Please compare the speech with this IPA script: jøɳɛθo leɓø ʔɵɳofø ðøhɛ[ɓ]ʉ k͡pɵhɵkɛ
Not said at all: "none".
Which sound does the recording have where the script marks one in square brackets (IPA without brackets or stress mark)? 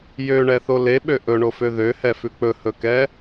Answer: f